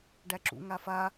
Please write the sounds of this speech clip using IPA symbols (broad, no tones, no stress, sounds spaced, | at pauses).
ɖ æ ǁ ṵ ŋ a f a